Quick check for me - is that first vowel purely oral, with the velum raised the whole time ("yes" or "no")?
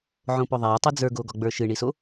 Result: no